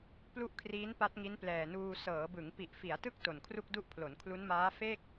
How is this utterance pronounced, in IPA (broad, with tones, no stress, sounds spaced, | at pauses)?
p l u˥˩ ʔ kʰ r iː˦˥ n p a˦˥ t̚ ŋ i˦˥ n p l ɛː˨˩ n uː˧ s ɤː˩˦ b ɯ˩˦ ŋ p i˨˩ ʔ f i˩˦ a̯ t ɯ˥˩ k̚ t o˨˩ n kʰ r u˥˩ k̚ d u˥˩ ʔ pʰ l o˩˦ n kʰ l u˦˥ n m aː˦˥ f e˥˩ k̚